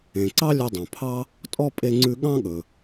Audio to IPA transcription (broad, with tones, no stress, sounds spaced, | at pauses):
ẽ˩ ǀ ɑ˥ lʲ ɵ˧ dˤ õ˩ pʰ ɑ˥ | tʼ ɔ˥ pʼ e˧ ŋ͡ǀ ʉ˧ ɠ ɑ̃˥ ɠ ɵ˩